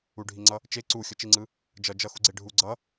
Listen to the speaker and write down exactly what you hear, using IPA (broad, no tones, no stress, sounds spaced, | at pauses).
u ɖʱ i ŋ͡ǀ ʌ | t͡ʃ e ǀ u xʲ ʌ t͡ʃ i ŋ͡ǀ ɯ | d͡ʒ ʌ d͡ʒ ʌ x u ɡ͡ǀ e ɖʱ u ɡ͡ǀ ʌ